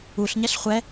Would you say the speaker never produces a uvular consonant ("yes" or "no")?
no